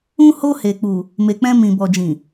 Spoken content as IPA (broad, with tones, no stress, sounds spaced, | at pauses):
ũ˧ h o˧ h e˨ k͡p u˨ | m e˨ k͡p ɛ̃˧ m ĩ˨ b ɔ˨ d͡ʒ ĩ˨